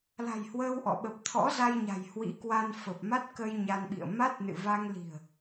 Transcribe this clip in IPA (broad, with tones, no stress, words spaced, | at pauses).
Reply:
la̤˨˩j hwəː˧wʔɔ̰˧˨ ɓə˨˩p̚ t̪ʰɔ̰˧˥za˧jɲa̤˨˩j hwḭ˧˥kwa˧n fə˨˩p̚ma˦˥t̚kə˧j ɲa˧nɓḭ˧˨ə̯ ma˦˥t̚nɨ̰˧˨va˧ŋ li̤˨˩ə̯